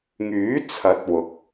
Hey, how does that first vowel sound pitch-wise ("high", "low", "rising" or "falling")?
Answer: rising